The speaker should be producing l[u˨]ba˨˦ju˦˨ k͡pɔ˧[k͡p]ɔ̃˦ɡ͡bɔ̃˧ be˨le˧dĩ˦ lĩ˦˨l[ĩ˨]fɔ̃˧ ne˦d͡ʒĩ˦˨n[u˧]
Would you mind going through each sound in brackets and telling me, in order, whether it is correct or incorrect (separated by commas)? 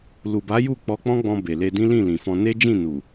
correct, correct, correct, incorrect